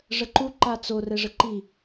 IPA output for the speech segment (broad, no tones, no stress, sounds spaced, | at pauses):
ʐ ə ǃ u ǃ a t͡s o r ɛ ʐ ə ǃ i